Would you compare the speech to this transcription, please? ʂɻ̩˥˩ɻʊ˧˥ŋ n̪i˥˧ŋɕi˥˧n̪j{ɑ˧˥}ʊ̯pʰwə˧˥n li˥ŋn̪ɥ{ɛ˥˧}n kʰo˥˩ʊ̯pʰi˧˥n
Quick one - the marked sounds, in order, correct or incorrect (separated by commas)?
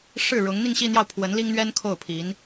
incorrect, incorrect